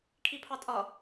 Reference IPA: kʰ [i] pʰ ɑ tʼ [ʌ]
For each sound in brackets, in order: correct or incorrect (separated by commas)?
correct, correct